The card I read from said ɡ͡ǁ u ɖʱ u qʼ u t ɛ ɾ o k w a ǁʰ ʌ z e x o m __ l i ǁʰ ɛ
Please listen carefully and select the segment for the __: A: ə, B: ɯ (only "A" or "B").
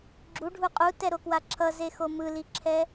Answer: B